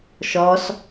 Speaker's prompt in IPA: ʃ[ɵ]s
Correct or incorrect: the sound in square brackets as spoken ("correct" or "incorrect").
incorrect